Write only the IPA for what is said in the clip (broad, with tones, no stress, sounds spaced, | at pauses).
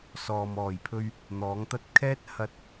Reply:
s ɔː˨ m ɔː˨˩ j pʰ ɵ˧ ɥ | n̪ ɔː˨˥ ŋ t̪ ɐ˥ t̚ kʰ ɛː˥ t̚ h ɐ˧ t̚